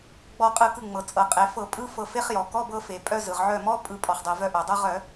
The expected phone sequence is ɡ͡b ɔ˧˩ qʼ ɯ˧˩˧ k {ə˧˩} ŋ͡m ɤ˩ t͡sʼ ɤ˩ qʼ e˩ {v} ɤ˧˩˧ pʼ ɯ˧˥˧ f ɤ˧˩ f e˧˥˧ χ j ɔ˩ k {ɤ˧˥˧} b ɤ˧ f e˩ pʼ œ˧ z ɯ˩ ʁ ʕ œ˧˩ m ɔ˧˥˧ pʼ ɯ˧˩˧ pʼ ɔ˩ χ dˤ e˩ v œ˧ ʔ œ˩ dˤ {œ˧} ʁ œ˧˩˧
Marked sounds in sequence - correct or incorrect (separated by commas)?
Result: incorrect, incorrect, incorrect, correct